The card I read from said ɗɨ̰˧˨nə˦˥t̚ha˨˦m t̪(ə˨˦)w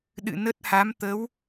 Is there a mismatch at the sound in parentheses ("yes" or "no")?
no